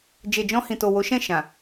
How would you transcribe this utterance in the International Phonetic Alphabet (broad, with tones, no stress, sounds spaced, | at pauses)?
d͡ʒ e˨ d͡ʒ ɔ̃˧ h ĩ˨ t o˨ w o˨˦ ʃ ɛ̃˦˨ ʃ ã˨